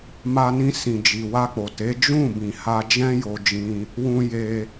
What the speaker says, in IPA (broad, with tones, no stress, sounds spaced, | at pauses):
m a˧ n ĩ˧ s ĩ˨ d͡ʒ i˨ w a˧ k͡p o˨ t e˨˦ d͡ʒ ũ˦˨ b ĩ˨ h a˧ d͡ʒ ɛ̃˦ j o˧ d͡ʒ ĩ˧ | w ũ˧ j e˧